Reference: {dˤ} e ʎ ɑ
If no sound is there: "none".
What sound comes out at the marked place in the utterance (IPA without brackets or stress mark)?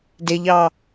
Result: d